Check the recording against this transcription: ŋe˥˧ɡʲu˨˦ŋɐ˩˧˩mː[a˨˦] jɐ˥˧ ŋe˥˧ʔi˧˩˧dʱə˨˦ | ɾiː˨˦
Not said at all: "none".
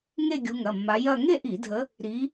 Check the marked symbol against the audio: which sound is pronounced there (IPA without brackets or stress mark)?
a˨˦